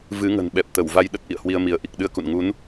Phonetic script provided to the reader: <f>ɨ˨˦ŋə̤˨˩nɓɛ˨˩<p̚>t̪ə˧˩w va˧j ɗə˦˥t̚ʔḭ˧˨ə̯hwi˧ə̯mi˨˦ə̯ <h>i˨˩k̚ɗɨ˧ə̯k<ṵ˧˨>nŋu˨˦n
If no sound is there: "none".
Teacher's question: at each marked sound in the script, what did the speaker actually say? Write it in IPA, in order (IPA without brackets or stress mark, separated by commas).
v, p̚, ʔ, ṵ˧˨